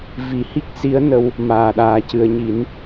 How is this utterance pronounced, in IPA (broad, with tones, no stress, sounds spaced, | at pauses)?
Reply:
v i˨˩˦ h i˦˥ k̚ s i˧˥ ə̯ n ə˧ w | m aː˨˩ ɗ aː˨˩˨ c ɨ˨˩˨ ə̯ ɲ i˨˩˦ n